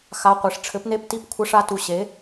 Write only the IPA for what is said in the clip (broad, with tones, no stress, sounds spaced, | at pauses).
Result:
x a˧˥˧ qʷ e˨˥ ʂ ʈ͡ʂʰ ɘ˨˥ p n e˧˥˧ p t i˦˨ p kʷʰ ɘ˧˥˧ ʂ a˧˥˧ t u˦˨ ɕ e˨˥